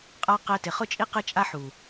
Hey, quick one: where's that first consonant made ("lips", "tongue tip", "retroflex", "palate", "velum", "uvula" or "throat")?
uvula